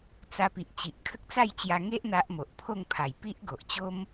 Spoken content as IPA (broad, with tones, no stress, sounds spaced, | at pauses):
t͡s a˧ p i˨ ʔ t͡ɕ i˨ ʔ kʰ ə˦ k̚ t͡s a˥˧ j t͡ɕ j a˧ ŋ e˦ ʔ n̪ a˦ ʔ m o˨ ʔ pʰ o˥˧ ŋ pʰ a˨˩ j p i˦ ʔ ɡ o˨ ʔ t͡ɕ o˦ m